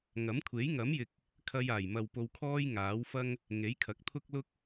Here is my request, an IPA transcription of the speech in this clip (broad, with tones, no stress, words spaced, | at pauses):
ŋɐ˨˥mkʷʰe˨˥jŋɐ˨˥mjɪ˨k̚ | kʰɐ˧jaː˨˩jmɐ˨w po˧wkʰɔː˥j ŋaː˨˥wfɐ˥ŋ | ŋe˨˥jkʰɐ˨˥k̚t̪ʰʊ˥k̚lʊ˥k̚